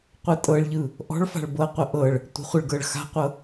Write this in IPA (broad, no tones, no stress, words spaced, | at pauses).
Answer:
qʷɯtʼɤɭʎɯ | ʔɔ̤ɭfa̤ɭ bɤqʷə ʔɤɭ | tʷə̤χʷəɭɡɤɭ xa̤qʷɤ